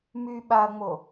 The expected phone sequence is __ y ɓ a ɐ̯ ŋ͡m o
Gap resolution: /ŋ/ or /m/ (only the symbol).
m